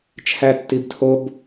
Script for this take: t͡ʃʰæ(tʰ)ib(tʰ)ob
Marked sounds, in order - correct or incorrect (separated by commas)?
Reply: incorrect, correct